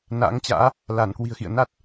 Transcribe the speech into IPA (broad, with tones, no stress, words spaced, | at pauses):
na̰ː˧˥ŋt͡ɕa̰ː˧˥ | la˧˩nkwi̤˨˩ə̯xḭ˧˨ə̯ na˦˥t̚